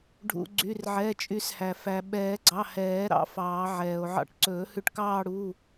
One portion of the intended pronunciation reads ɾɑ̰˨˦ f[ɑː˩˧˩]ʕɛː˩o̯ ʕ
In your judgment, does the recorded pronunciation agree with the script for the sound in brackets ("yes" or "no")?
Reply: no